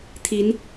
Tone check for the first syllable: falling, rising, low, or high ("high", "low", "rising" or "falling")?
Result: rising